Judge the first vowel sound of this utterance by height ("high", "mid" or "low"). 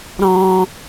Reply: mid